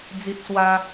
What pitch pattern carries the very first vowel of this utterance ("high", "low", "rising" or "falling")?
high